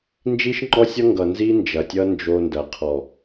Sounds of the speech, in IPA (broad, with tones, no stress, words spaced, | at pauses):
nd͡ʒi˦ʃŋ͡ǃɔ˦sʲʌ˦ŋɡʌ˨ nzi˦ nd͡ʒɐ˨tʲʌ˦ nd͡ʒo˦ndɐ˨ qʰɔ˨